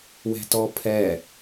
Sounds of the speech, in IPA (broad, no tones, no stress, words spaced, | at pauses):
wɛ̤tɔpʰɛ